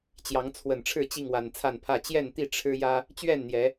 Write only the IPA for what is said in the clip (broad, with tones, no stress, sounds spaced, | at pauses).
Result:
t͡ɕ j ɑ˨˦ ŋ t͡sʰ w ə˨˩ n ʈ͡ʂʰ ɻ̩˥˨ t͡ɕ i˥˨ ŋ w a˨˩ n t͡sʰ a˥˨ n pʰ ä˥˨ t͡ɕ j ɛ˥˨ n t̪ i˥˨ ʈ͡ʂʰ ɻ̩˦ j ä˦ | t͡ɕ ɥ ɛ˥˨ n n̪ j ɛ˨˦